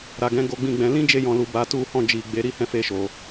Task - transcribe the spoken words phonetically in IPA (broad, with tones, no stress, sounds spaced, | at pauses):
ɾ a˨ ɡ ɛ̃˨˦ ɡ o˧ ɡ͡b ĩ˧ ɡ͡b ɛ̃˧ l ĩ˦ d͡ʒ e˧ j ɔ̃˨ l u˨ b a˨˦ t u˦˨ h ɔ̃˧ d͡ʒ i˨ ɡ͡b e˧ ɾ i˦ h ɛ̃˦˨ f e˧ ʃ o˨